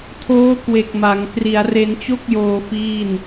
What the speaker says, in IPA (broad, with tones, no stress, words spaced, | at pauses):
tʰoː˦˥kwe˨˩k̚ ma˩˦ŋ kri˩˦a̯re˧nt͡ɕo˥˩k̚joː˧ fiː˥˩n